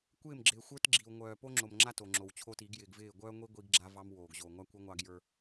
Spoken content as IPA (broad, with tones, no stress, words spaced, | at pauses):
kʷɪː˦˨mɡ͡ǁɪː˨xʷə˞˦t ɡ͡ǁi˨w ŋʷœː˨po˦ŋ͡ǁo˨mŋ͡ǁa˦ to˨ŋ͡ǁo˨wt͡ɕʰo˦ti˨˦ɡ jɪː˨ɡvɪː˦˨ ɡʷœː˦ŋʷi˦ ɡʷi˦ɡɡ͡ǁa˦ vɑ˦m woː˨ɡʑoː˨ ŋʷa˦kʷœ˦ ŋʷɑ˦ɡjə˞˦